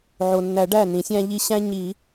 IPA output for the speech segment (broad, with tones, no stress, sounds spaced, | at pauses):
ʕ o˩ nː æ˨˩˦ ɖ æ˧˩ n ĩ˨˩˦ sʲ æ̃˦ ʎ i˦ ɕ æ̃˦ ɲ i˨˩˦